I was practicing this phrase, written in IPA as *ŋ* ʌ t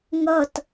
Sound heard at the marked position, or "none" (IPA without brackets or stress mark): ŋ